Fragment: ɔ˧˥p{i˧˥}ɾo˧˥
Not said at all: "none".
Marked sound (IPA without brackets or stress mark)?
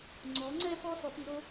i˧˥